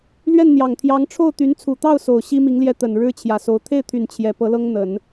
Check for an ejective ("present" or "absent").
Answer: absent